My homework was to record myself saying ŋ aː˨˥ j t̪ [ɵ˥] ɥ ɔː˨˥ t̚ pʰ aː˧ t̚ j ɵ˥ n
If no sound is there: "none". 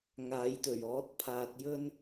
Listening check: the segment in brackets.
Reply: ɵ˨˩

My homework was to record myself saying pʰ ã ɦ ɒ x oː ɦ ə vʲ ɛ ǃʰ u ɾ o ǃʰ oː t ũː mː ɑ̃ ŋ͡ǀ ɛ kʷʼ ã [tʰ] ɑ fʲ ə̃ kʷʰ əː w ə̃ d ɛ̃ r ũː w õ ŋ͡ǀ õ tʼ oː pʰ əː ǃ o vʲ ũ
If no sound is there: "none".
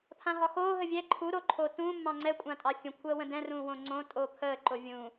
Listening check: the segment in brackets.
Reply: tʼ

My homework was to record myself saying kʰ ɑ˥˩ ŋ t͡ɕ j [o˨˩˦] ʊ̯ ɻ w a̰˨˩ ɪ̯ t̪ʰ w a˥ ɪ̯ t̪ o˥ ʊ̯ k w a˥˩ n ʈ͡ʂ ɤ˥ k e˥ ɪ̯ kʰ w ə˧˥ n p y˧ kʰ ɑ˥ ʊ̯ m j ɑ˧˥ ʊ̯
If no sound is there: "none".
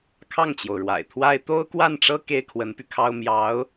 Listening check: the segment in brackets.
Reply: o˩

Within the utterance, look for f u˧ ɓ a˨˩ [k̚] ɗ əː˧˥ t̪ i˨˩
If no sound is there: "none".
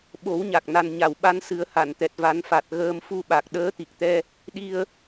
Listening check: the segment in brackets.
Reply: k̚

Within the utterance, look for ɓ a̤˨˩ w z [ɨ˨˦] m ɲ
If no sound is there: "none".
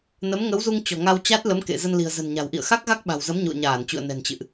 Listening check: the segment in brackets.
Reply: ə˨˦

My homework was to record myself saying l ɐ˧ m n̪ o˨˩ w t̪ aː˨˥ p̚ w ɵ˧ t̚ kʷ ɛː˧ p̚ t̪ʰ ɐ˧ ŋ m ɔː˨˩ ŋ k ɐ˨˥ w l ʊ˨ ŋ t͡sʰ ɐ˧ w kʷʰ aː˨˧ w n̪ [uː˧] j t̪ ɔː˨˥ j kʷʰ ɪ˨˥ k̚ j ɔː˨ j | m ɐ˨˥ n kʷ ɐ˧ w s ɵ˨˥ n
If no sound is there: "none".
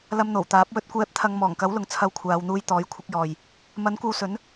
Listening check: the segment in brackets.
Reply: uː˧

